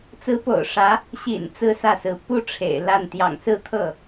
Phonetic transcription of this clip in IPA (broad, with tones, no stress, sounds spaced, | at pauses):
t͡s ɹ̩˧˥ p o̰˨˩ ʊ̯ ʂ ä˧˥ | ɕ ḭ˨˩ n t͡s ɹ̩˥˧ s ä˥˩ s ɹ̩˧˥ p u˥ ʈ͡ʂʰ ḛ˨˩ ɪ̯ l a˥˩ n t̪ j ɑ̰˨˩ ŋ s ɹ̩˥˧ t̪ʰ ɤ˥˩